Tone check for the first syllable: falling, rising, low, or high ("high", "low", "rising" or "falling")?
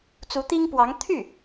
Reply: rising